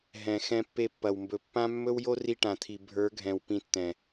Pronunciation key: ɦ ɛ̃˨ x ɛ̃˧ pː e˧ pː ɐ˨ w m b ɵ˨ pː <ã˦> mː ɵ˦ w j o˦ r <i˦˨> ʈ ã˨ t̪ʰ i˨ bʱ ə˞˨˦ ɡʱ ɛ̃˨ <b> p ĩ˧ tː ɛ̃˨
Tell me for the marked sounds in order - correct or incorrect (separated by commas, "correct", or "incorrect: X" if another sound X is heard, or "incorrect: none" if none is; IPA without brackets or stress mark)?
correct, incorrect: i˧, incorrect: w